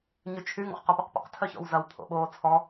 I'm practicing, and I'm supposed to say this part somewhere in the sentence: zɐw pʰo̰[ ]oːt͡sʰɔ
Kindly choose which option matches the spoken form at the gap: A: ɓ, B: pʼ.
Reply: A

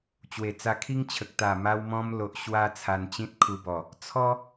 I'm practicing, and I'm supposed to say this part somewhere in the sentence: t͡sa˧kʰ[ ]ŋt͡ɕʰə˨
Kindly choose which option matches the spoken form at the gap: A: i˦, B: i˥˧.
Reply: A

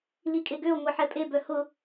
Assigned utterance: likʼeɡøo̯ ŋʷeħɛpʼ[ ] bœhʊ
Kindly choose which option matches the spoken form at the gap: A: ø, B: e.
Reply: B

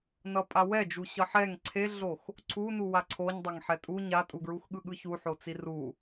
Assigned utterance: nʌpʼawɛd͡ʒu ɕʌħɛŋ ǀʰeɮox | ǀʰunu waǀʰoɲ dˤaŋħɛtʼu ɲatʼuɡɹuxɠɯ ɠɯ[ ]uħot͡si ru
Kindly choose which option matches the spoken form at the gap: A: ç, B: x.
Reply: A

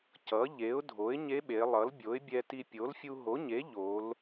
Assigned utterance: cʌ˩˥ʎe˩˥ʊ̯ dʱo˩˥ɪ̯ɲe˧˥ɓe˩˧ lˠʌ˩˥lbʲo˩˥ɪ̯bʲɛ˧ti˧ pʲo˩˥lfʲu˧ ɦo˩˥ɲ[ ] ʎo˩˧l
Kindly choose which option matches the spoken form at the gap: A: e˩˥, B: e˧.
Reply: A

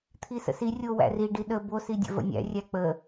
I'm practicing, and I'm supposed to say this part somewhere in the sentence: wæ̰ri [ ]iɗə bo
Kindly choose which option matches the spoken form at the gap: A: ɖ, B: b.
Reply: A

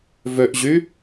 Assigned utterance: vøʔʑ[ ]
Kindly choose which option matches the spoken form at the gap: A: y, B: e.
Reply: A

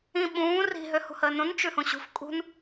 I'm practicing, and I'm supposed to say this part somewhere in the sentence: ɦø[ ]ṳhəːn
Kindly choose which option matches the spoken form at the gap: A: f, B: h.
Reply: B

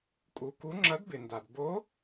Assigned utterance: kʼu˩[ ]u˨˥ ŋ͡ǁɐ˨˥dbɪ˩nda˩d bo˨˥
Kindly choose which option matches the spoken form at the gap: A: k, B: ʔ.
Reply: A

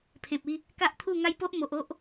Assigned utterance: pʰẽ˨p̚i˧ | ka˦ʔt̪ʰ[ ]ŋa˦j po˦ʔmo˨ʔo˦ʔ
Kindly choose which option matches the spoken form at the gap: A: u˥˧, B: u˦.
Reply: A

